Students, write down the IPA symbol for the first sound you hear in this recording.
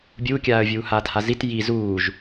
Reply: bʲ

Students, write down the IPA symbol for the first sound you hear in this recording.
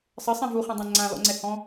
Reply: sˤ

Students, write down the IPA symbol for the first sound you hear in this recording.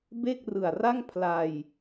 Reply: b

